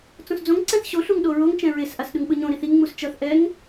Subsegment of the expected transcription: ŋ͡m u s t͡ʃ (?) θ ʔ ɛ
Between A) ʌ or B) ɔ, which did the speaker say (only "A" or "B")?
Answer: A